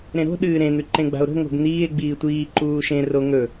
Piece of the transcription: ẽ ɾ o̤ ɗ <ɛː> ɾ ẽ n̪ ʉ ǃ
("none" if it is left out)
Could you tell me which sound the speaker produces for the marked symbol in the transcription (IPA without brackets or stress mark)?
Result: ɨː